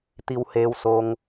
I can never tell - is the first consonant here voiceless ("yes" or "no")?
yes